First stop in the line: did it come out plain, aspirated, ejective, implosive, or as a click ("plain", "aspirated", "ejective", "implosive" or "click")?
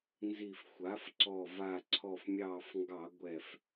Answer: click